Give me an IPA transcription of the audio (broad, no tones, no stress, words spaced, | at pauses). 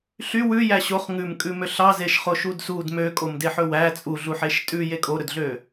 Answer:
ɬy wʉjæ ɕoχ ŋʉmkʼʉmø ɬɑzeʃχoʃud sud møkʼomdeħɵ wæ t͡sʼuɮuħeʃ tʼʉje kʼoɾɵdɮø